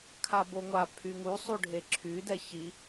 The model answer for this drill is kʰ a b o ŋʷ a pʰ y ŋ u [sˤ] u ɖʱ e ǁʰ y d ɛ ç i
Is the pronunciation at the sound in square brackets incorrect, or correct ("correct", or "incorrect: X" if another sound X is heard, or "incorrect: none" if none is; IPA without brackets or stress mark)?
correct